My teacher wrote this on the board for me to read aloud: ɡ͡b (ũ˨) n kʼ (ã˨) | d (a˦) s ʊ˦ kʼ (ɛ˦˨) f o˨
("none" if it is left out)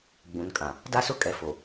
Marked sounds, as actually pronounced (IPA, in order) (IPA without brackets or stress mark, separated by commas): ũ˨, ã˨, a˦, ɛ˨